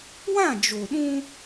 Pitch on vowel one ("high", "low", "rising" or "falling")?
falling